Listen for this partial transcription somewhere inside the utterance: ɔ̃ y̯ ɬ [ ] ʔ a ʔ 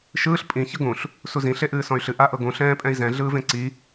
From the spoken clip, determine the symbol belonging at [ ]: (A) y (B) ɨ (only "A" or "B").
B